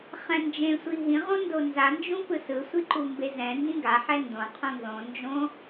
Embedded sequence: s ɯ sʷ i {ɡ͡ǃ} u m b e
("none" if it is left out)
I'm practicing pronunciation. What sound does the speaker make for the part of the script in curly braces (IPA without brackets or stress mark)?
ǃ